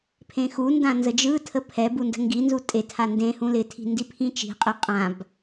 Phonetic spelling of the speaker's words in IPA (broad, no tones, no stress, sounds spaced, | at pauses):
pʰ ẽ x u n d ã n z ə d͡ʒ ɯ tʰ ə pʰ ɛ b u n d ə̤ ŋ ɡ i n z u tʼ e tʰ a n d ẽ h ũ l ɪ tʰ i̤ n d i pʰ ĩ t͡ʃ i̤ qʼ ɪ qʼ ã b